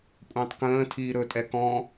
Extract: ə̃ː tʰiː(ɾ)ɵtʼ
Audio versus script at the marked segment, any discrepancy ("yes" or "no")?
no